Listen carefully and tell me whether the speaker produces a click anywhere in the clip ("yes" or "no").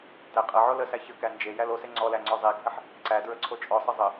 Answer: yes